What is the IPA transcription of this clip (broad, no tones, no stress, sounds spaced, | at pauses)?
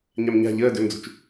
ɲ a m ɲ a̤ ʎ əː d ø m d͡z ṳ t͡ʃ